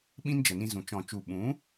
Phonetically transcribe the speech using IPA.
ɓ ĩ˦ n d͡ʒ ə˨ n ĩ˧ z ũ˨ t͡ʃ ɔ̃˨ t͡ʃ u˨ ɓ ũ˨˦

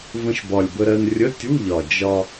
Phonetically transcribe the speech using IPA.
v ə̃˧ ʃ b ɒ˨˩ lʲ b ə˧ ɾ ɜ˧ n rʲ ə˧˥˧ tʲ u˧˥˧ ʎ ɒ˨˩ d͡ʒ ɒ˧

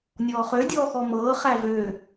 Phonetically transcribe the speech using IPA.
nʲ ɔː χ ø dʲ ɔː x ɔ m ɤː χ æ v ø

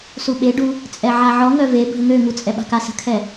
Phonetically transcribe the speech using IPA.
s u ɓ e ɖ u | t͡sʼ ɛ ʕ a ʕ ɔ ŋ œ v e bʱ ə ŋ ø ŋ u t͡sʼ ɛ ɓ a̤ k a s ə̤ kʰ ɛ

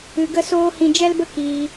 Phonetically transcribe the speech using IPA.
ɨ˧ ɡ ə˦ s oː˦ h ĩ˧ d͡ʒ ɛ˦ l b ə˦ k iː˧

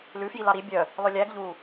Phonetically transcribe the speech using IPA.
l ʉ f j i l ɑ ɾ i bʲ œ | lˠ ø lʲ æ ɡ ʎ uː

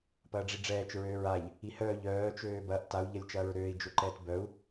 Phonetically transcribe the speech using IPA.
p ɐː ɖ͡ʐ i ɖ͡ʐ ɛː t͡ʃ ɹ øː ɹ a ʎ | i h œː ʎ œː t͡ʃ øː b ɐ ʔ t a u̯ ʎ ɐ lʲ t͡ʃ ɐː ɹ ɾ øː i̯ d͡ʒ ø ǃ ɛː t b œ u̯

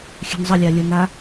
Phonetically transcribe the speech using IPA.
xʲ ɛ̤ n zˤ ə lʲ a lʲ ə n a

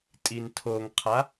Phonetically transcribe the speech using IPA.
tʼ i n tʰ o ŋ qʰ a

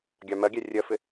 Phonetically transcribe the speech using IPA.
ɡʲ ɑ m ɜ ɡʲ æ rʲ ɜ f ɪ

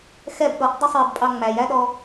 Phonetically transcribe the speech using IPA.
x ɛ b ɗ ɔ ʔ dˤ ə sˤ j ɪ b pʼ ɑ ŋ͡m æ j æ ɗ ɔ

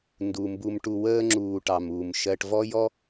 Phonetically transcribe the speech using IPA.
n d u˩ m b u˨ m ʈ u˨ w əː˦ ŋ͡ǁ uː˨ ʈ ɑ˩ m uː˩ m ʃ ɜ˨ ʈ v ɔ˦ j ɔ˦

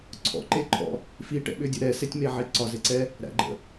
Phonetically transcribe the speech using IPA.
ǀʰ ɔ̰ ǃ e ǃʰ ɔ̰ | f i ʈ ɛ̰ ɓ ʏ dʲ ə ɾ ɛ s e tʲ m e ʕ e ǀ ɒ z e ǀ ɛ | ɾ æ̰ ɡ͡ǃ ə̰

